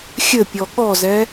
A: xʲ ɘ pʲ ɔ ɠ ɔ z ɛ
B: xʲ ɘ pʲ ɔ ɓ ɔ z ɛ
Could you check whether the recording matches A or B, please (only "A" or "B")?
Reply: A